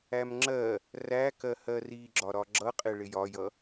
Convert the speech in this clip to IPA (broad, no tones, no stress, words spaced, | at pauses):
æmŋ͡ǁɜ | rækɜ hɜriɡ͡ǁɒ ɾɒɡ͡ǁʌqʼɪ ɭɪjɒjʌ